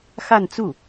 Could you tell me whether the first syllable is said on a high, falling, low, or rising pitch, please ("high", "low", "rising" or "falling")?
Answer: falling